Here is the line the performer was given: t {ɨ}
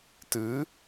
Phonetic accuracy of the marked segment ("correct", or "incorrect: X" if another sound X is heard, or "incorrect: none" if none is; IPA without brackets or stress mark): correct